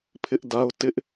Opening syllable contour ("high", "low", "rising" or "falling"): high